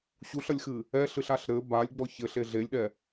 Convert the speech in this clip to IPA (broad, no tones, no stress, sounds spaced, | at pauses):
ɕ u ɬ ɐ lʲ x ɨ | ɛ ɬ ɨ ɬ a ɬ ɾ ɘ b a lʲ ɡ͡b ɔ ç ɘ ɬ e ɮ e lʲ ɗ ɛ